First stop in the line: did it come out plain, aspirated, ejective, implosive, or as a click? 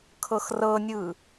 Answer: aspirated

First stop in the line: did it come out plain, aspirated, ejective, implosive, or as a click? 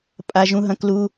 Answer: ejective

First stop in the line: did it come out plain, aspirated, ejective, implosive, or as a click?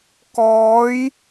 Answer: plain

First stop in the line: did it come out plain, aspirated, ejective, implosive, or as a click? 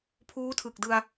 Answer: aspirated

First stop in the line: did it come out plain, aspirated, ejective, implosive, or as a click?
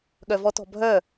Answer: implosive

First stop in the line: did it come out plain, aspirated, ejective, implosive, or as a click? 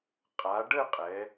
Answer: ejective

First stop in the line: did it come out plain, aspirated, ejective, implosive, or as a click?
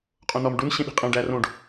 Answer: ejective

